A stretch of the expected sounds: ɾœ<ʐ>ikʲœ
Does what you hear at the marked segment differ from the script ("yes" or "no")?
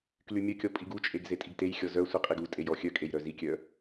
yes